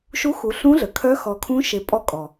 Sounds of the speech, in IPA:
ʃ u˧˥ x u˩˧ ɬ ũ˧˥ ɮ ə˩ kʰ œ˧˥ x ɔ˩˧ kʰ ũ˧˥ ʃ e˩˧ pʼ ɔ˧ kʼ ɔ˩

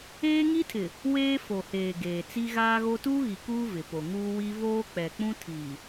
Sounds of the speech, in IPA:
eː˦ ŋ i˦ tʰ ɪ˨ | w eː˦ f o˨ h eː˨ ɡ eː˨ t͡s i˦ ɣ aː˦ ɣ o˦ t uː˦ ɣ i˨ k uː˦ v ɪ˨ p o˨ ŋ uː˦ w i˦ v oː˦ k͡p ɛ˨ k͡p ũ˦ tʰ iː˨

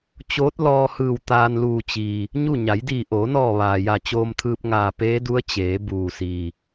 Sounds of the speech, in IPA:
t͡ɕ oː˧˥ t̚ l ɔː˧ h ɯː˧˩ w t̪ aː˧ n l uː˧˩ t͡ɕ iː˩ | ɲ u˥˨ ɲ a˩˧ j d iː˧˩ ʔ oː˩˧ n ɔː˧˩ ʋ aː˩ j a˧˩ t͡ɕ oː˧ m t̪ʰ ɯː˧ p̚ ŋ aː˧˩ p eː˧˥ d u˧˥ ə̯ t͡ɕ eː˩˧ b uː˩ s iː˩

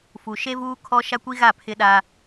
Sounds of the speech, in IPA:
f u˨ ʃ e˦ v uː˦ kʰ ɔ˦ ʃ a˦ kʷ i˦ ɣ a˦˨ pʰ ɪ˦ ɗ a˦

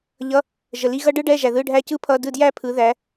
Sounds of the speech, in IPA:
ʎ ʌ˧˥˧ | ʒ ə˨ l i˧˥˧ ɣ ʌ˥ ɖ ɯ˥ ɖ ɛ˧˥˧ ʒ æ˨ ð ɯ˧˥˧ ɖʱ æ˥˨ c ɯ˥ pʰ ʌ˧˥˧ d ɯ˥˨ d j æ˥ pʰ ɯ˨˦ ð æ˨˦

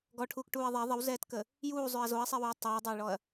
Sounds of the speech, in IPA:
ɡ ɔ ʈʰ uː k ʈ uː ɐ̯ ðˤ ɛ ðˤ ə w z ɛː t k ə | j uː zˤ ʏ ɐ̯ z o ɐ̯ sˤ ɛ w uː tˤ ɛː dˤ a j ɭ ɔ ɐ̯

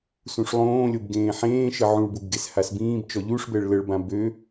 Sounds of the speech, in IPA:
s ũ ʂ lˠ õː lʲ o b ɡ ẽː ħ ẽː ʃ ə ʕ ũ ɭ b u b ɡ e s h a s b ĩː b t͡ʃ ɔ ʎ u ʂ b ɛ ɭ l ə ɭ b ã b ø

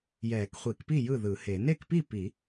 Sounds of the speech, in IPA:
j ɛː˨˩˦ k χʷ i˨˩˦ k p i˥˩ j ɯ˥˩ ð ɯ˨˩˦ h e˨˩˦ n e˥˩ k p i˥˩ p i˨˩˦

